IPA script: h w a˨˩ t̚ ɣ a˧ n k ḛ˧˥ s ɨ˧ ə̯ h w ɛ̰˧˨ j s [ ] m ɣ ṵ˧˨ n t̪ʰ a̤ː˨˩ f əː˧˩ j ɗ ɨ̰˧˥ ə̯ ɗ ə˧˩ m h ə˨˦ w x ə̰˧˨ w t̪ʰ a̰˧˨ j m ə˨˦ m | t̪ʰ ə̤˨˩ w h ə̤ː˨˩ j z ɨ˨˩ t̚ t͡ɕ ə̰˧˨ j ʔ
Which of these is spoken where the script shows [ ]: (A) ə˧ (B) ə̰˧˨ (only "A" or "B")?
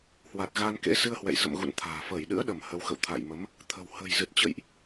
B